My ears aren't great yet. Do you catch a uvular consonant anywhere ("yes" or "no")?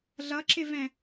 no